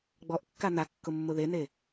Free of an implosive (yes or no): yes